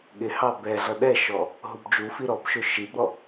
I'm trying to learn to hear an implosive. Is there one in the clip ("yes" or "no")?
yes